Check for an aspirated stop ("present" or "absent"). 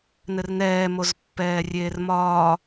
absent